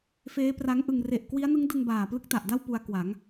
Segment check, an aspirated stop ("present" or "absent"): absent